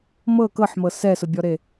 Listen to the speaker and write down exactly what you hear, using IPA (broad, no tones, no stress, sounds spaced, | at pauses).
m ɤ k ɤ ħ m ɤ s ɛ s ʊ bʲ ɔ ɾ e